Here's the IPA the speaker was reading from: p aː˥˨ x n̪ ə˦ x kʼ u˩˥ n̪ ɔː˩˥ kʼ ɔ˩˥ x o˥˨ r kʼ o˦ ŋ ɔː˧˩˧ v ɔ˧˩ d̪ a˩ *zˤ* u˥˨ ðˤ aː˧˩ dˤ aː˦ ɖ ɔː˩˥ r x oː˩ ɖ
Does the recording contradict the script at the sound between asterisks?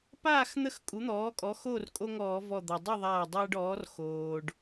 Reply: yes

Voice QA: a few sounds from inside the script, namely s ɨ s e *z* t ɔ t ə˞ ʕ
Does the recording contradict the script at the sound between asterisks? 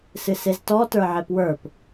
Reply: no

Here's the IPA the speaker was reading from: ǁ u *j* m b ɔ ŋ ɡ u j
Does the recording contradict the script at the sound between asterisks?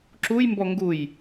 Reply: no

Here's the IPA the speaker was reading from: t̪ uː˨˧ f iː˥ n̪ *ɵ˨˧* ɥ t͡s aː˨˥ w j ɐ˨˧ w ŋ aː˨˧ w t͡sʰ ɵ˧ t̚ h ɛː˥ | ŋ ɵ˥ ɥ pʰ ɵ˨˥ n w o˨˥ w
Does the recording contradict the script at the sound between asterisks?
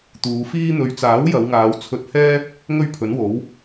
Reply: no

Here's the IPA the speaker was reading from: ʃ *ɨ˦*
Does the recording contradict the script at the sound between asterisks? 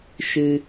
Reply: no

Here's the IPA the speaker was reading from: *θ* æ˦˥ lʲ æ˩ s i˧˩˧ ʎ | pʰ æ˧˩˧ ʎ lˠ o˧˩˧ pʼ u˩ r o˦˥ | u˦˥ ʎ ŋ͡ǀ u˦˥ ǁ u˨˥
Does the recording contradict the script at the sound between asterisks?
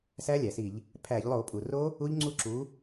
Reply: yes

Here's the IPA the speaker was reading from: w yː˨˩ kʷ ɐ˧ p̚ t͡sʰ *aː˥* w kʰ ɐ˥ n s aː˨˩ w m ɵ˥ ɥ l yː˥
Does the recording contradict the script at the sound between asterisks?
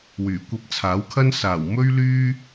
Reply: yes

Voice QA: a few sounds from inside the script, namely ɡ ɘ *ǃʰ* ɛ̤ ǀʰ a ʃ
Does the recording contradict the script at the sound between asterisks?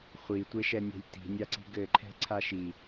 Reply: no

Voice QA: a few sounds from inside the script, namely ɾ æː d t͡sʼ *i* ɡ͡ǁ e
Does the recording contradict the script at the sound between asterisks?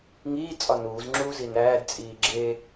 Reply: yes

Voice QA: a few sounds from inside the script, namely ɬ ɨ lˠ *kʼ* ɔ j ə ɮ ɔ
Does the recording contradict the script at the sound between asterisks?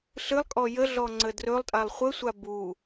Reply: no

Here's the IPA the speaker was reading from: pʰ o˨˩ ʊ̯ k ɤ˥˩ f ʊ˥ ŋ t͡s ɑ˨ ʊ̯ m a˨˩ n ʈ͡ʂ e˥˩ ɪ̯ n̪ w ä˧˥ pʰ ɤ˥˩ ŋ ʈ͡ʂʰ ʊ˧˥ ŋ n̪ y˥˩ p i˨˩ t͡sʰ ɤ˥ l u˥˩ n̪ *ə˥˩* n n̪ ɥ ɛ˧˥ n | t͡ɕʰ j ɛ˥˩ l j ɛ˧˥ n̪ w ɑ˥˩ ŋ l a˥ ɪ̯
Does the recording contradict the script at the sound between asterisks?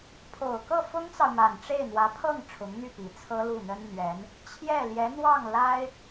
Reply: yes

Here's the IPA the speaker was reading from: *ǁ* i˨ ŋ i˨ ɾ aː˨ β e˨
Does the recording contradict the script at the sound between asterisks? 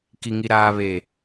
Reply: yes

